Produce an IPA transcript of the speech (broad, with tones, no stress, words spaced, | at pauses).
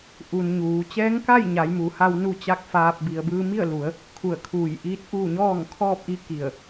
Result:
ʔu˩n ɲuː˩˧ t͡ɕɛː˧˥ŋka˥˨j ɲa˩˧jmu˩˧ha˧w nu˥˨t͡ɕa˥˨k̚faː˧p̚ bi˩ə̯bɯː˧mi˥˨ə̯lu˩˧ə̯ | kʰu˧˩ə̯ kʰuː˧˩jʔiː˧˥t̚ʔuː˥˨ ɲɔː˥˨ŋkʰɔː˥˨p̚ʔi˧˥ ki˧˩ə̯